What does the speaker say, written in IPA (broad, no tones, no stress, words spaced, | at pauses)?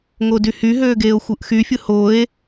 ŋodyhyɦøː ɡeːo̯xʷɯʔxyfʲɯ hoe̯